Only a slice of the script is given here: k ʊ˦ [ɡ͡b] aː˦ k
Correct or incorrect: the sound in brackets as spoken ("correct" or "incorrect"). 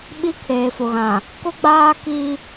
correct